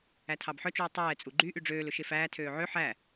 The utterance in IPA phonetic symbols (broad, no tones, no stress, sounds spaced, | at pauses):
æ tʰ ɑ b ħ œ t͡ʃ uː tˤ ɛː t͡sʼ u ɡ͡ǃ y ʔ y ɖ͡ʐ øː l ɵ ʃ e f æː tʰ øː ʕ ø ħ æ